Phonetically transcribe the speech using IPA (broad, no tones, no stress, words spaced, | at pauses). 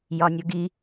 jɒnʲʊɡi